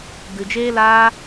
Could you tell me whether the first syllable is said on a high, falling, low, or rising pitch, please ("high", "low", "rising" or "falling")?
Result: low